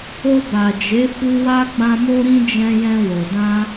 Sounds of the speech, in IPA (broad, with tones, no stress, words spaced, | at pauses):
o˧ba˨d͡ʒe˨˦ fu˧wa˧ ɡ͡bã˦mo˦ɾĩ˦ d͡ʒɛ̃˧jɛ̃˧wo˨ dã˧